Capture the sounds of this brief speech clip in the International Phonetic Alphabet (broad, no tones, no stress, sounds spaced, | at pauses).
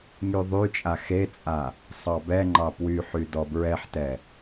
ŋ y ðˤ y t͡ʃʼ a x e t͡sʼ a | sˤ ɑ b ɛ ŋ͡ǃ ɑ p w y ħ y d ɔ b ɹ ɛ ħ t ɛ